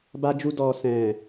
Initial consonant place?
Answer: labial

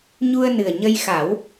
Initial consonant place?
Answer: palatal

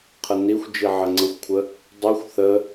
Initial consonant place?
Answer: uvular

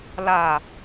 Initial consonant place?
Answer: alveolar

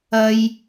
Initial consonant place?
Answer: palatal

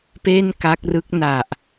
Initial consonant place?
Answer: labial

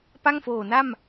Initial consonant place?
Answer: labial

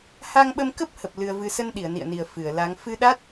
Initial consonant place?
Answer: glottal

